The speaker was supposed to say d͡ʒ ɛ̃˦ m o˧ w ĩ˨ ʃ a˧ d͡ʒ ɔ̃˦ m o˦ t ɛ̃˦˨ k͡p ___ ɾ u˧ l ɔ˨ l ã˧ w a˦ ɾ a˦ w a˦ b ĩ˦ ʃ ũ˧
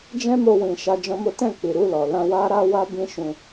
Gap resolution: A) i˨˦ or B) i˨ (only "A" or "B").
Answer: B